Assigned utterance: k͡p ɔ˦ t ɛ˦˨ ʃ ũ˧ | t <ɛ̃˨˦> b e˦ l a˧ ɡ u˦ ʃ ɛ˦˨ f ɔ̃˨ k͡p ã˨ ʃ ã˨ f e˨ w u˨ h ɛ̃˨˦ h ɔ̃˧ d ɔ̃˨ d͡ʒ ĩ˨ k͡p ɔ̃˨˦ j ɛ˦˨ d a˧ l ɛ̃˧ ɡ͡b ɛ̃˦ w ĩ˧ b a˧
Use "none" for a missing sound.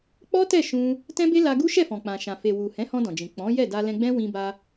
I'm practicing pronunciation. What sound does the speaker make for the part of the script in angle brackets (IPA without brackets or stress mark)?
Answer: ɛ̃˦